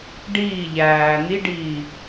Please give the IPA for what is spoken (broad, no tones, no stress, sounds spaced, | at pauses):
ɖ iː ʎ æː n̪ i ɖ iː